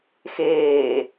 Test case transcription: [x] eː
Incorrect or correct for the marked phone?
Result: correct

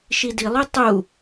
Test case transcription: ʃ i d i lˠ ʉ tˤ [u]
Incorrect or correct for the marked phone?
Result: correct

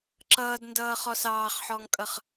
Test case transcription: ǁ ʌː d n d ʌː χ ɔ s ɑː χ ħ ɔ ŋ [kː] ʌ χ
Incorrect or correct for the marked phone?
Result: incorrect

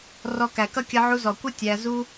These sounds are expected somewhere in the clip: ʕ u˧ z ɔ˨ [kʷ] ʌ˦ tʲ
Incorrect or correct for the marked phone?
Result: correct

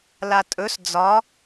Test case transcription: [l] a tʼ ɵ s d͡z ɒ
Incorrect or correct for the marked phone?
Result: correct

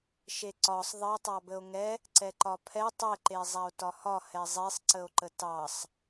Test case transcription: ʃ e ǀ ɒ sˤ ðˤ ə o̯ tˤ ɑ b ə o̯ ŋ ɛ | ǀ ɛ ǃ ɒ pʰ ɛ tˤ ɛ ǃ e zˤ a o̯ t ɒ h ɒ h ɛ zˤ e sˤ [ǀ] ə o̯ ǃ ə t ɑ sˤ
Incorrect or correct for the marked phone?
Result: correct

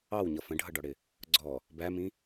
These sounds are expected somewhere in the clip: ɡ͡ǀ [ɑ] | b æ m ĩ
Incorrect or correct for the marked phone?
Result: incorrect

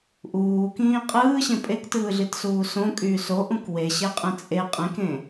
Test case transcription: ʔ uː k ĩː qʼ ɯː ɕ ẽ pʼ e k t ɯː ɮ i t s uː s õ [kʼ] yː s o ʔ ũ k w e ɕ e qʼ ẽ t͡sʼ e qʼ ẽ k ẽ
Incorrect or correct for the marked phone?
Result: correct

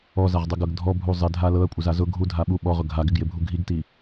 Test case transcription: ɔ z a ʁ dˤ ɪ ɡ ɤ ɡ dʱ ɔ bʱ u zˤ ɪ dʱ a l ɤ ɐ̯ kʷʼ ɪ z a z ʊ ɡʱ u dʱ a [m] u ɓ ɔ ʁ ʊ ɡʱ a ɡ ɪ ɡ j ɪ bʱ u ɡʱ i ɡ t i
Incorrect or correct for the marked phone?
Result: incorrect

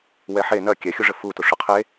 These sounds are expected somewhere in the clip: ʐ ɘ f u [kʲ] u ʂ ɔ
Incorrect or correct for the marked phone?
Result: incorrect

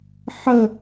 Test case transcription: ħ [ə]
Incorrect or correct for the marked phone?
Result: correct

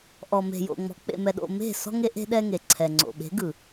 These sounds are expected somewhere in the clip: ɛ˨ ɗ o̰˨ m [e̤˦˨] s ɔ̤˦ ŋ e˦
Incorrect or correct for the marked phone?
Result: correct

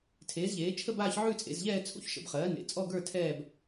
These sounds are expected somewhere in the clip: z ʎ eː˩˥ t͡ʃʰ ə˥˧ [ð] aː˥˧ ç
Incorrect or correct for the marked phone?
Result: incorrect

